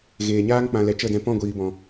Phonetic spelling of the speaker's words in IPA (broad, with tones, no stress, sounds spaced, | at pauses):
ɣ eː˨ ɲ aː˦ ŋ k͡p ã˨ l ɛ˨ t͡ʃ ə˦˨ d ɛ̃˧ p ɔ̃˦˨ ɡʷ iː˨ b ɔ̃˨